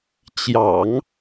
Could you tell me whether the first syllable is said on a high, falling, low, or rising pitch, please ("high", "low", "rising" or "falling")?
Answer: low